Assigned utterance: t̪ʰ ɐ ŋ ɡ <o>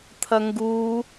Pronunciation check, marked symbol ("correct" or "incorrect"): incorrect